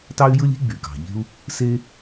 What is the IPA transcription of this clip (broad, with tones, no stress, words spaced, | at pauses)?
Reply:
tɑ˥y̯jɯ˥lʲ i̤˥ɡ͡by˩ kɑ̤˩ʎe̤˥u̯ | se˥